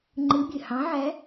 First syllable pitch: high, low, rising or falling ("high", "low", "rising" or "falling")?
rising